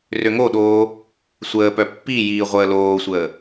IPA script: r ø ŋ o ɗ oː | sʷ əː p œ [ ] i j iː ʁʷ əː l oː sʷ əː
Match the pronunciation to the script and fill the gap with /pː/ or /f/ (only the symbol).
pː